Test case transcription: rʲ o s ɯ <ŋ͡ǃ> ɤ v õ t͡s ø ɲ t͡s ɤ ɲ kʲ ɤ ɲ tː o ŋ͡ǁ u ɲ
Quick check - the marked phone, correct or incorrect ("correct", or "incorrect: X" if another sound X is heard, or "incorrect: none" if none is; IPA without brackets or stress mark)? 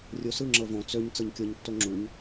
incorrect: ŋ͡ǁ